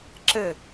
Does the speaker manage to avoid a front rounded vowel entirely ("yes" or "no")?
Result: yes